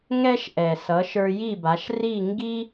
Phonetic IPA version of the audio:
ŋ ɛ˧ ʃ ʔ ɛ˩ s ʌ˩˥ ʃ ə˞˧ j i˥˩ b a˩˥ ʃ r i˥˩ ŋ ɡ i˥

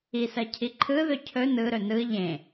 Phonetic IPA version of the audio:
i s ɜ cʰ i ǃʰ ɯ ð ɵ cʰ ɵ n ɯ ɾ ɵ n ɯ ʎ ẽ

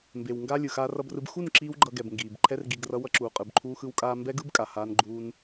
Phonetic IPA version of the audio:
m b e˨ w ŋ ɡ aː˦ lʲ ɯ˨ x aː˧ r ʌ˧ b r ɯ˧ b x u˦˨ n ǁ iː˦ w ɡ͡ǃ ʌ˧ ɡ ɛ˨ b ŋ ɡ iː˨ b ǃʰ ɛ˦ r ɡ i˧ ɡ r ʌ˦ w ʌ˦ ǁ uː˨ qʼ ɯ˨ b ǃʰ uː˧ x ɯ˧ w kʼ aː˧ m b ɛ˦ ɡ ɯ˦ b kʼ a˨ h aː˦ n ɡ͡ǃ uː˦ n

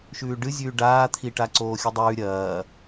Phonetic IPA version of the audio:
ʃ ʉː ɖ ɨ zʲ ʉː ɖ aː t̪ʰ i ʈ a ǀ oː xʲ ɨ dˤ ʉː ɾʲ ɐː

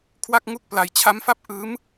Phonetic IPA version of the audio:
kʰ w a˥˩ k̚ ŋ u˥˩ k̚ p l a˧ j t͡ɕʰ a˦˥ m f a˦˥ p̚ ʔ ɯː˦˥ m

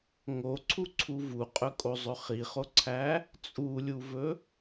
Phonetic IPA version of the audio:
ŋ o ǀʰ u ǀʰ u v u qʼ ɵ kʼ o zˤ ɵ χ i χ o ǀʰ æ | t͡sʼ u lʲ u v ɵ

